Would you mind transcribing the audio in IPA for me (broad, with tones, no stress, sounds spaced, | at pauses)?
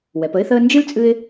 w ɛ˩˧ p ə˥ ɪ̯ θ əː˥ n d͡ʒ ɨ˥ l t͡sʼ ɨ˥ ɪ̯